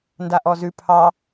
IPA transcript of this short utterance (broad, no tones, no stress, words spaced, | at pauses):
ndaʔɔzʉ pʰɑ